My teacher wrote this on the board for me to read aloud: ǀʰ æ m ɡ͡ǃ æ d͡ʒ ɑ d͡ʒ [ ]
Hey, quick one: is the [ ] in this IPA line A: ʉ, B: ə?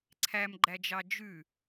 A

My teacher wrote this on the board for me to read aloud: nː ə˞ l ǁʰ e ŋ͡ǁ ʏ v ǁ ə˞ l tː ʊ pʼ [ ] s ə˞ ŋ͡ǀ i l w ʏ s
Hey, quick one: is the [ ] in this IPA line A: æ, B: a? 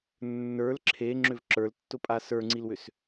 B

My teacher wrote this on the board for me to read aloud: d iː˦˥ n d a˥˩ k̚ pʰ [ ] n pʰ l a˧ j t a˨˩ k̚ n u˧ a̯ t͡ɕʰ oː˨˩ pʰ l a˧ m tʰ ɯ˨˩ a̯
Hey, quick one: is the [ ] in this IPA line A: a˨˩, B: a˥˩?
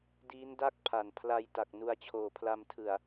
A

